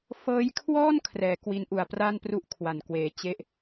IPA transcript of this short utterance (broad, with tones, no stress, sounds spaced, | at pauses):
f ɤː˦˥ j kʰ w ɔː˥˩ n kʰ r ɛː˩˦ k w i˦˥ n ʔ u˨˩ a̯ p r a˥˩ n p r u˥˩ ʔ kʰ w a˨˩ n k w eː˨˩ t͡ɕ e˥˩ ʔ